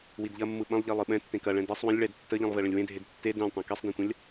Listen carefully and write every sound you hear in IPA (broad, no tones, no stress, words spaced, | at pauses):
widʎɐmːɯ ɓɐ̃lˠʎi lˠɯɓɛ̃ tːẽkɐ ɭɛ̃dɛsˤ wə̃lʲ ɭɛd tːəʎĩlˠveɭə̃lʲ wẽdʱed tːe dɛ̃lʲ tˤɛ̃kesˤdẽtʷɐ̃lʲ